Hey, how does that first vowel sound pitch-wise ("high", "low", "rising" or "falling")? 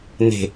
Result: falling